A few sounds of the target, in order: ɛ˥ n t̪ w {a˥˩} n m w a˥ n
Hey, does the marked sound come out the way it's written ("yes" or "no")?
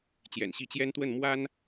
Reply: no